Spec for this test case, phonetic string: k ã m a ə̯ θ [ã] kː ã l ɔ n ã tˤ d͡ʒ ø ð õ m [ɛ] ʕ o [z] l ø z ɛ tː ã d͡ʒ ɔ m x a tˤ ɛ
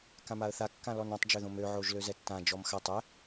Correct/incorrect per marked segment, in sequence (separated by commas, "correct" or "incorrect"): incorrect, incorrect, incorrect